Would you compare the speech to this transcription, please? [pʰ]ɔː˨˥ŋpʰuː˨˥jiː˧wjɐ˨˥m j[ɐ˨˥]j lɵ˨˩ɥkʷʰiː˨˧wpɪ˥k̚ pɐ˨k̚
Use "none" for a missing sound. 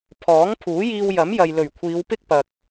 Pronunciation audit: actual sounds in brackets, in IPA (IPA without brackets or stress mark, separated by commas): pʰ, ɐ˨